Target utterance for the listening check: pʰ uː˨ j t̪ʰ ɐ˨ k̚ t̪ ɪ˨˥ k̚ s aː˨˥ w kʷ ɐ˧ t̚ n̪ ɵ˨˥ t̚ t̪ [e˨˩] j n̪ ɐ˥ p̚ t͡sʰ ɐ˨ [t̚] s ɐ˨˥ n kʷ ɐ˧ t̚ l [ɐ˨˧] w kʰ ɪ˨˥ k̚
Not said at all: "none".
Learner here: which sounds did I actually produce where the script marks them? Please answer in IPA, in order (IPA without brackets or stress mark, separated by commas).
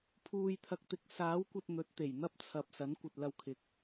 e˨˩, p̚, ɐ˧